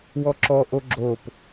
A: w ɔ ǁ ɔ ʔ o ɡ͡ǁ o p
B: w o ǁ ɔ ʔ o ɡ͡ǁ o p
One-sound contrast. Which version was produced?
A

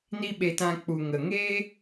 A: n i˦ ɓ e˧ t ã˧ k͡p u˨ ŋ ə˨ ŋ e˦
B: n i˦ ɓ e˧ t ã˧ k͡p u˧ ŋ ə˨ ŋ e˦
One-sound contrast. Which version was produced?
A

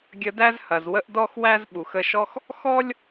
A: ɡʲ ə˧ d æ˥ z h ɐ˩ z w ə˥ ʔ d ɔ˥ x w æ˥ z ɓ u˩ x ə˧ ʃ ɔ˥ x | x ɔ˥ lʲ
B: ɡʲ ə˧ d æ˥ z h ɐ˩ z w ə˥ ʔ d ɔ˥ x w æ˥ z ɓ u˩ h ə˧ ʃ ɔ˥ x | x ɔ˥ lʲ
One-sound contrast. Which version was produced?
A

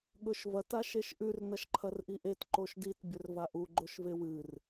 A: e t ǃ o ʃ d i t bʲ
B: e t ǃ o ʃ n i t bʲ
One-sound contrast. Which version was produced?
A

